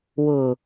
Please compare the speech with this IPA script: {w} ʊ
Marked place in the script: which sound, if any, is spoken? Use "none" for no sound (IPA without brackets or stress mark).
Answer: w